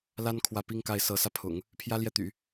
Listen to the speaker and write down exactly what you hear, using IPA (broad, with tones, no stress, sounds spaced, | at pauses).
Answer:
l a˥ n kʰ w ä˥˩ p i˥ ŋ k a˥˩ ɪ̯ s ɤ˧˥ s ä˧ pʰ ʊ̰˨˩˦ ŋ | pʰ j ä˥ l j ɛ˥˩ t̪ y̰˨˩˦